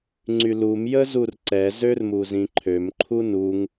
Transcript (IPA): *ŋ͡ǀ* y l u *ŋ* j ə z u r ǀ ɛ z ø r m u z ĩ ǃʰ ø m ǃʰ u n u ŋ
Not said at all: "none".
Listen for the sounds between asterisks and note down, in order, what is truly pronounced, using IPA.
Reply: ŋ͡ǀ, m

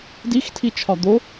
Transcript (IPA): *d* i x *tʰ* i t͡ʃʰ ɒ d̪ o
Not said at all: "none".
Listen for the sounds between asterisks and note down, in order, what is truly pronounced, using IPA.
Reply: d, tʰ

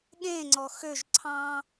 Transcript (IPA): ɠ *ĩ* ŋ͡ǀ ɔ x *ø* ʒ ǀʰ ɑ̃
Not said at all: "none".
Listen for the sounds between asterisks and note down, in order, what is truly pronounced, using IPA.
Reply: ẽ, ø

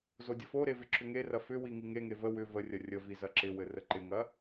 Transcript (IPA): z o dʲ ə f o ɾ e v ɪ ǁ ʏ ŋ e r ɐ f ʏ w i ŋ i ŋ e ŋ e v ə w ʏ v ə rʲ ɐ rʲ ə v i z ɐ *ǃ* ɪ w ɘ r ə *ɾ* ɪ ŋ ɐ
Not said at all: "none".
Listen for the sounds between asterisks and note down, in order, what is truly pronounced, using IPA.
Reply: ǁ, ǃ

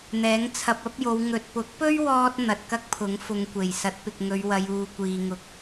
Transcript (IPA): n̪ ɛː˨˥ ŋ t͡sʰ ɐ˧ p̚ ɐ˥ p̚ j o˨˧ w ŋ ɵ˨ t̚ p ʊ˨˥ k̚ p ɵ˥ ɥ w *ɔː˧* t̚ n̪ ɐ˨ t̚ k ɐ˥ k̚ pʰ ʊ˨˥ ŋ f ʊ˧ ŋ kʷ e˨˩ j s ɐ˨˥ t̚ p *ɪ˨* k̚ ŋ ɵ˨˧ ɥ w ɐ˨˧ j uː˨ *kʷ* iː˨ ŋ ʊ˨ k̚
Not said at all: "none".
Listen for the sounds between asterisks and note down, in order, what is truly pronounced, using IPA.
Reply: ɔː˧, ɪ˨, kʷ

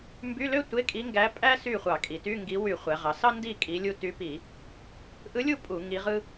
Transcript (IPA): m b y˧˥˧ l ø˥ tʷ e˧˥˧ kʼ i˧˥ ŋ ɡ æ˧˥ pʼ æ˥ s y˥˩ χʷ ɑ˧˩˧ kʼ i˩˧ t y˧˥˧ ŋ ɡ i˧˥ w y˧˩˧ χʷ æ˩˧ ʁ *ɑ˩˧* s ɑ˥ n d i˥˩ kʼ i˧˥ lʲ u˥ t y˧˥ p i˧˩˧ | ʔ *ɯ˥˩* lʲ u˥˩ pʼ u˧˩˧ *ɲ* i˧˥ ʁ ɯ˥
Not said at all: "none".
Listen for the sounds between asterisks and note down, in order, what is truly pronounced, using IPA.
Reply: ɑ˩˧, ɯ˧˥, ŋ

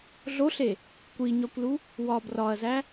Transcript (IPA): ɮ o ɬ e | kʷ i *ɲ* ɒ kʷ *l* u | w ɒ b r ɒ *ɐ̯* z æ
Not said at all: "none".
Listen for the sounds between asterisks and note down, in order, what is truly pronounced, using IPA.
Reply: ɲ, l, ɐ̯

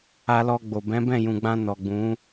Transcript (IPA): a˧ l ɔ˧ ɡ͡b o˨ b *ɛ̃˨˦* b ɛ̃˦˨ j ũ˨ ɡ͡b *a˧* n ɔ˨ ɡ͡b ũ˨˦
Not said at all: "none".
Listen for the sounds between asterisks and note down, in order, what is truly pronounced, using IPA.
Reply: ɛ̃˨˦, ã˧

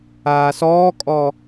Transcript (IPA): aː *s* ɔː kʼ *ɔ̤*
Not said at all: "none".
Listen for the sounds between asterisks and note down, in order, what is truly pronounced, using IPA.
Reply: s, ɔ

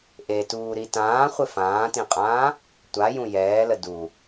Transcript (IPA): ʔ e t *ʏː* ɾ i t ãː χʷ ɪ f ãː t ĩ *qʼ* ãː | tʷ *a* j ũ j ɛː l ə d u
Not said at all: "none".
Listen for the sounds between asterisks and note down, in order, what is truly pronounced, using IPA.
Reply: uː, qʼ, a

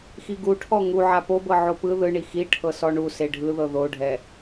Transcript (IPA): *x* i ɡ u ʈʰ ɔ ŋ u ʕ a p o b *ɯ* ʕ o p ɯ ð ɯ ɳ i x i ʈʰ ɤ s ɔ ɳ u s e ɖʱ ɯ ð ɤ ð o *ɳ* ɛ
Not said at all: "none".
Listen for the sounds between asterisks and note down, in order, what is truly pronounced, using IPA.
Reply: x, ɤ, ɖʱ

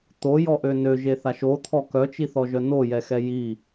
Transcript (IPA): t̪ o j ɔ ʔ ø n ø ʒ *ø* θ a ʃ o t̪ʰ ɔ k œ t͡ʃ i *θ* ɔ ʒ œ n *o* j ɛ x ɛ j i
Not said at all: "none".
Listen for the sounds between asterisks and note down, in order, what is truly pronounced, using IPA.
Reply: e, θ, o

